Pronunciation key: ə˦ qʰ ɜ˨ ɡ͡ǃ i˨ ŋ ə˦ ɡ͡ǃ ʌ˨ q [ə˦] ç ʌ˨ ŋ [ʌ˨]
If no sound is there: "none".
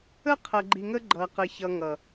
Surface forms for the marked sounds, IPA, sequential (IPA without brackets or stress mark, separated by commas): ə˨, ʌ˨